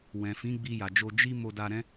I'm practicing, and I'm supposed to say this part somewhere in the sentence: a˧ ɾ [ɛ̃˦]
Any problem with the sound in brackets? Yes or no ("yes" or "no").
no